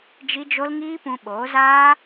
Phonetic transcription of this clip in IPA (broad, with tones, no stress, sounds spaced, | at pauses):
d͡ʒ i˦ d͡ʒ o˦ l ŋ iː˦ p ũ˧ ɓ oː˨˦ z aː˦